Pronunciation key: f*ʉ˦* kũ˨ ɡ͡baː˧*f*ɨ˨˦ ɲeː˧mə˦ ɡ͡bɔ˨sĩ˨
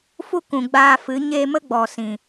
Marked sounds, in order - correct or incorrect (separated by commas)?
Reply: incorrect, correct